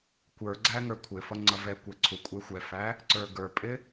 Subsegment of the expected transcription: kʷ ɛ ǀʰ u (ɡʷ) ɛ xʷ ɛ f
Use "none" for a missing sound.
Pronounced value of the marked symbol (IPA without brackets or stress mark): kʷʼ